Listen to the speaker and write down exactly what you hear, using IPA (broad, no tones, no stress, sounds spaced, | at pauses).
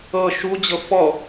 ɤ ʃ u d͡ʑ ɤ f ɔ